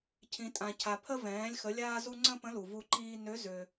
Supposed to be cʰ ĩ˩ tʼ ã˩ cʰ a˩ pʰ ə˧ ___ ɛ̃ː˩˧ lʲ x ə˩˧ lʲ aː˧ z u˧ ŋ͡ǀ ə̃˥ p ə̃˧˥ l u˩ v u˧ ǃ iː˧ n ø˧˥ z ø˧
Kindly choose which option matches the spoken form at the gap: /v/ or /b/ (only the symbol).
v